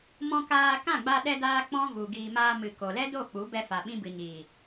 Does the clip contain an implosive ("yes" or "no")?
yes